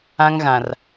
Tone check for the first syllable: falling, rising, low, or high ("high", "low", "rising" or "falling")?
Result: high